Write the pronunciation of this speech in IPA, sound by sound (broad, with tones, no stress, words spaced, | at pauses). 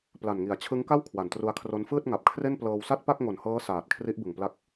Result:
pla˨˩nŋi˩˦a̯ t͡ɕʰɯ˦˥ŋka˥˩w kʰwa˨˩ntru˧a̯kʰro˦˥n fɯː˥˩t̚ŋa˨˩p̚kʰre˥˩nplɤː˧w sa˥˩t̚pa˥˩k̚ŋo˨˩nhɤː˦˥ saː˨˩t̚kʰri˦˥ʔbɯ˨˩ŋpla˦˥k̚